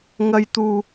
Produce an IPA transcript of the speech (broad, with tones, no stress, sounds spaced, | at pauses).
ŋ ɐ˧ j t̪ uː˨